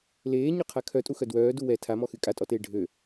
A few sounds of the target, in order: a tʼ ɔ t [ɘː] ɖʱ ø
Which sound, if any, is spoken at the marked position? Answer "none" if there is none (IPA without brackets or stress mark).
eː